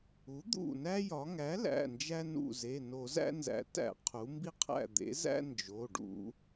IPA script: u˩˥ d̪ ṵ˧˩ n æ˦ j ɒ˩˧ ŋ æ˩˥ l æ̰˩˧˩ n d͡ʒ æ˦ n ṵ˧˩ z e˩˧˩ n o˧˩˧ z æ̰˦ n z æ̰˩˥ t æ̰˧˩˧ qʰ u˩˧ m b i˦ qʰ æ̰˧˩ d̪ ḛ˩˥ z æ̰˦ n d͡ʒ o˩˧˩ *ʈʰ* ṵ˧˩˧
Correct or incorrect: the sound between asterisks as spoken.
incorrect: ɖ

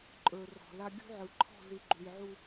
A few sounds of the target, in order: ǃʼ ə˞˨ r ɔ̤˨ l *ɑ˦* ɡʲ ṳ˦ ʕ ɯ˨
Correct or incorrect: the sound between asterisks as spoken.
incorrect: a˦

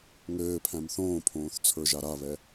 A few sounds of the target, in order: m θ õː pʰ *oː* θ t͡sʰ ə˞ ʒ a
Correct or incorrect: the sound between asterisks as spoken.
incorrect: õː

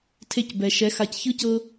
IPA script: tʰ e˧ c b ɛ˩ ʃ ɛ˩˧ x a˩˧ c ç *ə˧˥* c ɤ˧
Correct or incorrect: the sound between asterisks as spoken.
incorrect: ɯ˧˥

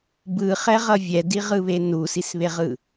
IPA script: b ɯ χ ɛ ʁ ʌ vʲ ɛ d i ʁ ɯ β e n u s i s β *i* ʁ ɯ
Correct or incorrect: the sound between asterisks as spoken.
incorrect: e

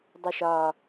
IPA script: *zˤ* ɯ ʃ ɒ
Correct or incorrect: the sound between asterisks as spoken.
incorrect: dˤ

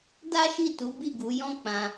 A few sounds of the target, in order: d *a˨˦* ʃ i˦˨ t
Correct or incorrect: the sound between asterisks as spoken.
incorrect: a˦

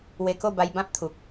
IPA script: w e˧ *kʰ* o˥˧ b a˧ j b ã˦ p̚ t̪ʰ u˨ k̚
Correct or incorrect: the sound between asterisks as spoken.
incorrect: k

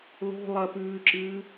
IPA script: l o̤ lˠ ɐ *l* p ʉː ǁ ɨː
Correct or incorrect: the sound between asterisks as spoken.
incorrect: none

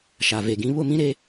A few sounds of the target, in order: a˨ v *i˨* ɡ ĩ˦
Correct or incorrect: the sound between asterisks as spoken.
incorrect: e˨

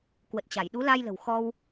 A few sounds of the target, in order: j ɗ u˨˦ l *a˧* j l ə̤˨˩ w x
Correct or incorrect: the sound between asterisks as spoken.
correct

